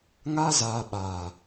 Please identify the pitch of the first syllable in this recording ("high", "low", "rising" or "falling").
high